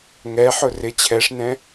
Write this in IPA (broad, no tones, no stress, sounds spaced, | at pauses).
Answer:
ŋ ɛ ħ ʊ r ɪ t͡ɕʰ ɛ ʂ n ɛ̃